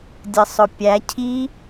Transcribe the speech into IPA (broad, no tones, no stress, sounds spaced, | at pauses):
dʲ ə sˤ ʊ pʲ æ cʰ i